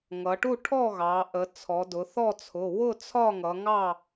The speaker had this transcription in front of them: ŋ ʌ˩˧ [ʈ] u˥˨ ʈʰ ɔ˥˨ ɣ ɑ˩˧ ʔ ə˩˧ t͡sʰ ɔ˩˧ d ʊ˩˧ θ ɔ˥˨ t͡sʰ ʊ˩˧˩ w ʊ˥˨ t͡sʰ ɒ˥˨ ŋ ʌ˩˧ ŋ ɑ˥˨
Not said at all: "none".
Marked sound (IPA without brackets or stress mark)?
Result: ʈ